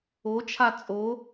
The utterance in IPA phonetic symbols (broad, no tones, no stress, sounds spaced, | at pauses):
o t͡ʃʰ a t͡sʼ o